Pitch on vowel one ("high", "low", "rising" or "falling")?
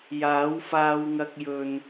rising